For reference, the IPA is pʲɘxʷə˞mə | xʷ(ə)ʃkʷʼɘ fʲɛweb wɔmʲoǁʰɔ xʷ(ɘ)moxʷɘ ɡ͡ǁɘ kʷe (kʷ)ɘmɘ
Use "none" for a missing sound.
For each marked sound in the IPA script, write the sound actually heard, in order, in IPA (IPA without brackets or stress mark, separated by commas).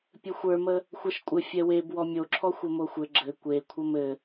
ɛ, ɘ, kʷʰ